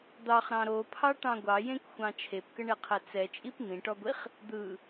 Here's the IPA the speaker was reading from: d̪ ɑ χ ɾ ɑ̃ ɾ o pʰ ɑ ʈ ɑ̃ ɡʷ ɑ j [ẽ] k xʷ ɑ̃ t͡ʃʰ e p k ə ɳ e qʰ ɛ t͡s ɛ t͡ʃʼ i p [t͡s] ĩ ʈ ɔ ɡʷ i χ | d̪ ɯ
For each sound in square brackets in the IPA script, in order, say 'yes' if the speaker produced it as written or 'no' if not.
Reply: yes, no

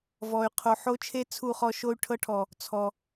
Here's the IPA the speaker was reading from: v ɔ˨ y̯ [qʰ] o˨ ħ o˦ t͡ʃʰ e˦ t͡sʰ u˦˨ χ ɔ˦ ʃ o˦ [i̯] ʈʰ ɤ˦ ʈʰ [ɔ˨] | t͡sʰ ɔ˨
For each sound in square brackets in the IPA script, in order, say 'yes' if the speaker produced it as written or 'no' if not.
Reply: yes, no, yes

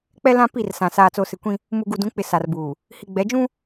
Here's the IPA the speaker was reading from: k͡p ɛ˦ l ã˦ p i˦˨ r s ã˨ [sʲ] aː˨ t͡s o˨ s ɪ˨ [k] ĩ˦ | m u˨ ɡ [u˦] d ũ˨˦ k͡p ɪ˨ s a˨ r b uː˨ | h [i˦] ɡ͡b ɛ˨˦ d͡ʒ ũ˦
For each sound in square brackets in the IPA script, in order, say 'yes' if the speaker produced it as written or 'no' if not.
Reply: no, no, no, no

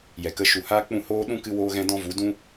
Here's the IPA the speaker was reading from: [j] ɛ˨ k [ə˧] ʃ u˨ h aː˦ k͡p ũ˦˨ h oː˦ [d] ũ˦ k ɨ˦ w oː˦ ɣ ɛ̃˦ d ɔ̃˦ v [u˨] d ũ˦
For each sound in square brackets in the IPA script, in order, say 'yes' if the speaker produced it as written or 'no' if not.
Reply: yes, yes, no, no

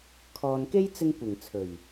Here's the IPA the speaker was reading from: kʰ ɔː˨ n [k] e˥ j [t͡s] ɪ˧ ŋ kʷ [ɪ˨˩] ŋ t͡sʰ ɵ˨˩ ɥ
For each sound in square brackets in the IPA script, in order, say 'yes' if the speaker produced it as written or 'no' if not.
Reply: yes, yes, yes

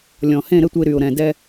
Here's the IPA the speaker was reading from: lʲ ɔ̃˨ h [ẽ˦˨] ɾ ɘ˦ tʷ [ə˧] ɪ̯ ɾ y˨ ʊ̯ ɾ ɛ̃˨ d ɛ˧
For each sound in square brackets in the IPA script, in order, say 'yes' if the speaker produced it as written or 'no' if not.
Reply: yes, yes

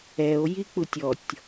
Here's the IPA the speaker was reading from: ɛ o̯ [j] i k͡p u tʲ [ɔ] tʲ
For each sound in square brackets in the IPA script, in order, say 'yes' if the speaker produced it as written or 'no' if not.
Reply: yes, yes

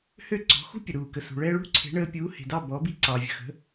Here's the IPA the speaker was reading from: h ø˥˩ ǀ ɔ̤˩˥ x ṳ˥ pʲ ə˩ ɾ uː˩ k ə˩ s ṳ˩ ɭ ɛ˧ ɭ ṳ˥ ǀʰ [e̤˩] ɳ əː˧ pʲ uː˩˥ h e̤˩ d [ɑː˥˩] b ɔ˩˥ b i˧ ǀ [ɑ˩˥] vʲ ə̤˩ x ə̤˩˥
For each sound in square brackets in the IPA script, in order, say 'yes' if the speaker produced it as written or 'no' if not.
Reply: no, no, no

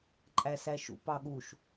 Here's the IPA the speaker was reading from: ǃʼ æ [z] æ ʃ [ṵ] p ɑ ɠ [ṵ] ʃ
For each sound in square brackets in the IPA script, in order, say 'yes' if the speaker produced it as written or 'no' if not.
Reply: no, yes, no

